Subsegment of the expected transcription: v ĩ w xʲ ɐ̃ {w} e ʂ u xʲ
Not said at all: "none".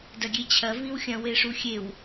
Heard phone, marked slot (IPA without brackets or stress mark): w